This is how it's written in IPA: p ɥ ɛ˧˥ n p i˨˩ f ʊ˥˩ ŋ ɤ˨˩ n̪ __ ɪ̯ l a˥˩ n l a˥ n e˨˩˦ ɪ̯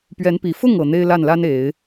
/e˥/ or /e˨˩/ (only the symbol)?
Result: e˥